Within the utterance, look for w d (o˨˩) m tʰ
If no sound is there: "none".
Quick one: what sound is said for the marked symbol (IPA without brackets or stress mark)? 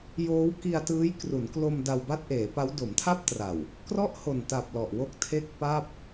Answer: o˩˦